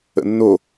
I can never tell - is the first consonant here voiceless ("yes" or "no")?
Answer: no